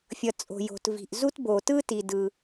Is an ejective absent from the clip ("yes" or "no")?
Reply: no